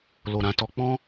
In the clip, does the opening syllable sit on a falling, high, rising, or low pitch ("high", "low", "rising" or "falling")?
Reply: low